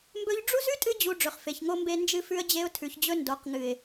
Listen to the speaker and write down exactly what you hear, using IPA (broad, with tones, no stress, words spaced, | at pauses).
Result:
mbɵ˧ʎɖ͡ʐu˦z ʉ˦tʼɨ˧d͡ʑu˨ ɖ͡ʐɵ˨χfe˨çŋo˦mbe˦ nd͡ʒɨ˧fʉ˧ə̯d͡ʑe˧ʊ̯ tʰʉ˨çd͡ʑɵ˧ ndo˨qŋɨ˨ɪ̯